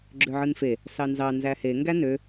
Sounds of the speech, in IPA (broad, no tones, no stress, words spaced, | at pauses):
ɡ͡ǁøʕɯnfe | sɑnzɑ nzæhe ŋɡænø